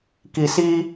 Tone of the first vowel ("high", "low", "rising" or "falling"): low